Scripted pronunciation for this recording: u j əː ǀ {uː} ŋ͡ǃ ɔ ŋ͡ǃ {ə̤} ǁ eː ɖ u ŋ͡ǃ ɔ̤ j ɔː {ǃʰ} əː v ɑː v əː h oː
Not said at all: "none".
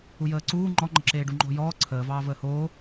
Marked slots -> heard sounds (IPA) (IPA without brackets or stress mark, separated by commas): uː, ə̤, ǀʰ